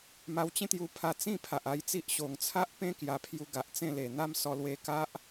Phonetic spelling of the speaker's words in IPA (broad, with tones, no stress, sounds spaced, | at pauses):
m a˧ w t͡ɕ ẽ˦ t̪ j u˧ pʰ a˧ t͡s ĩ˥˧ pʰ a˨ ʔ a˧ j t͡s i˦ ʔ ɕ o˨˩ ŋ t͡sʰ a˦ ʔ p ẽ˦ k j a˧ pʰ j u˧ ɡ a˨ ʔ t͡s ẽ˥˧ l e˨˩ n̪ a˦ m s ɔ˧ l w e˧ k a˦ ʔ